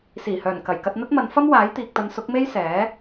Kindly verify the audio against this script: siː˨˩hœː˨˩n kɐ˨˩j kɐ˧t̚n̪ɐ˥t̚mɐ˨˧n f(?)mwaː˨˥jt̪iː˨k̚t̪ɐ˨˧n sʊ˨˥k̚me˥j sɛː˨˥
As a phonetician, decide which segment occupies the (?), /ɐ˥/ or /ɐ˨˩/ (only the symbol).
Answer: ɐ˥